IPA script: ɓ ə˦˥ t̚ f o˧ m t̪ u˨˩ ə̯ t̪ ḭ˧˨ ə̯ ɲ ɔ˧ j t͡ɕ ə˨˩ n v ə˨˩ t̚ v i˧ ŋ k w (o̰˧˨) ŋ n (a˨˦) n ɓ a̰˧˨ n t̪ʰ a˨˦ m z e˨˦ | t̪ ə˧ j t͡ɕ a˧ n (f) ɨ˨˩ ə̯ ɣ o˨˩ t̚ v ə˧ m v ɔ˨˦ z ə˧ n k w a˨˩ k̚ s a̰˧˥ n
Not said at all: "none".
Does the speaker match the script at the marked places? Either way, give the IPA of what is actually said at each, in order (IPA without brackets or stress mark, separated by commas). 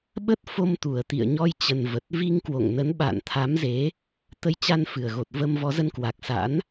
o̰˧˨, ə˨˦, f